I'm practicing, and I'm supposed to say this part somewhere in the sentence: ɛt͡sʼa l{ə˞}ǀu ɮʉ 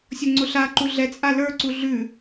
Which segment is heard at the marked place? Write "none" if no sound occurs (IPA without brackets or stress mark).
ə˞